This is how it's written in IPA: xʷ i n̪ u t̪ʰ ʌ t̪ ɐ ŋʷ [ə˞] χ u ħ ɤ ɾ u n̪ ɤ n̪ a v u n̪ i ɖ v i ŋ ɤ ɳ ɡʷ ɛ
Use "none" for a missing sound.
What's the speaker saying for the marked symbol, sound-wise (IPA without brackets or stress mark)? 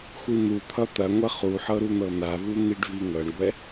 ɐ